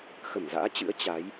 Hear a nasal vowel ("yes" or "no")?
no